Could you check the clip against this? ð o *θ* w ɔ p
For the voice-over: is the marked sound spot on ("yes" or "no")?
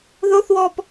yes